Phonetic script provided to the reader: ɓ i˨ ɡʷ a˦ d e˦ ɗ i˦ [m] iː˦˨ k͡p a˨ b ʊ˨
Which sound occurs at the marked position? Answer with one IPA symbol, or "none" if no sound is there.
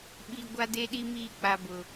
m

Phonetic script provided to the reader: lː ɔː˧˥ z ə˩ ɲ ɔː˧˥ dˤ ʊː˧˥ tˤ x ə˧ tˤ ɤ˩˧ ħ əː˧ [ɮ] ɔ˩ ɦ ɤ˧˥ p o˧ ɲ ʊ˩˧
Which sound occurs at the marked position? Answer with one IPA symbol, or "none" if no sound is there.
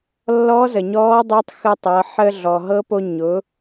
ɮ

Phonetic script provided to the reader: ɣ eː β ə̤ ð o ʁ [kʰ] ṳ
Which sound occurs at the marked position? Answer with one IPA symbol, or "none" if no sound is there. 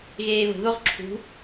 ǁʰ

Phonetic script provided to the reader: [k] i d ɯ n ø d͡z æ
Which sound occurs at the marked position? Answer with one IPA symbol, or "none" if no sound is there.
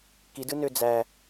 k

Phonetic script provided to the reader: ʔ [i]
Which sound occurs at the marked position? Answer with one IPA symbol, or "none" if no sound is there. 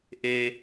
e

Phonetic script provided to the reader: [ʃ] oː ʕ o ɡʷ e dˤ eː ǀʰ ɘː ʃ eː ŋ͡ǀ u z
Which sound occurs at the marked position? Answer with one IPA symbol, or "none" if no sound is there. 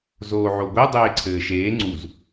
z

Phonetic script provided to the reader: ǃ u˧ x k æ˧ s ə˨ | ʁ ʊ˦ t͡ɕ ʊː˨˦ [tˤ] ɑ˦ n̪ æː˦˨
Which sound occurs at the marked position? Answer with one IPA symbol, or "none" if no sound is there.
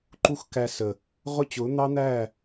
n̪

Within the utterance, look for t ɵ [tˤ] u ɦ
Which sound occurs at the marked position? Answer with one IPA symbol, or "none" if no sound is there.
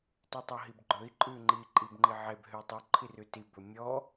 tˤ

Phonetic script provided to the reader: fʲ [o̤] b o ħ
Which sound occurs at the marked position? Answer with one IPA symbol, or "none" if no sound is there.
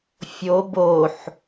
o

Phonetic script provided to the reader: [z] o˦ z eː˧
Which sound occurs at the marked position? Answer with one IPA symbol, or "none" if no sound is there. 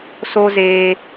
s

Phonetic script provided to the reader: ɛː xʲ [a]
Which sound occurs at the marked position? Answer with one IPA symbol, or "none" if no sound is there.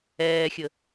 ə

